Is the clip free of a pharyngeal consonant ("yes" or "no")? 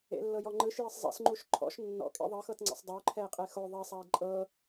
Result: yes